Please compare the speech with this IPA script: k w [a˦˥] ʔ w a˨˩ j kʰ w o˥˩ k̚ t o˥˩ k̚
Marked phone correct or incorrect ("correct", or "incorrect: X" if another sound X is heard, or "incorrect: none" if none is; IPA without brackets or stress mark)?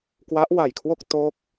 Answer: correct